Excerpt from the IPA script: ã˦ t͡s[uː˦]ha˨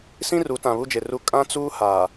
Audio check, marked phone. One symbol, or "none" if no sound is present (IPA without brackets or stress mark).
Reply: uː˦